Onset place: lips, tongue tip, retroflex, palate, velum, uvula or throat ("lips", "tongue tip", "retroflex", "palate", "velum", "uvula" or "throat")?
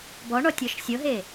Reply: lips